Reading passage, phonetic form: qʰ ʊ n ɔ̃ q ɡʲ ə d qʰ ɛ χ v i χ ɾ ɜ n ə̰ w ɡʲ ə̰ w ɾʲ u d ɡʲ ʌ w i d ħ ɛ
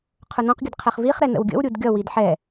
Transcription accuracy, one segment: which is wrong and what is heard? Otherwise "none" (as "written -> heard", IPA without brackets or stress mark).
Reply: ɜ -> ɛ